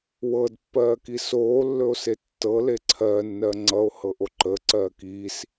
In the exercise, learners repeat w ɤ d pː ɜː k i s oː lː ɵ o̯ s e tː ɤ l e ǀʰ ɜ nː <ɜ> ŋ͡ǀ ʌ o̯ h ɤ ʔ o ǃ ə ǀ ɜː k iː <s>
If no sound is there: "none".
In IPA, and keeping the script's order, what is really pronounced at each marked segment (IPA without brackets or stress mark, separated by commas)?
ɜ, s